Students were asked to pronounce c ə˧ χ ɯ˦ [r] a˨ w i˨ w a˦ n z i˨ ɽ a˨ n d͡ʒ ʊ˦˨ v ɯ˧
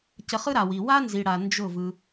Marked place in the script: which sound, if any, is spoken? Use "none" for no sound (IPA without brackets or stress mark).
ɾ